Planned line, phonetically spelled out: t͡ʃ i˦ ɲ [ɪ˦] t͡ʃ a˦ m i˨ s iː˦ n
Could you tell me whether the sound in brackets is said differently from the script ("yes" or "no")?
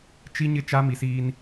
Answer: no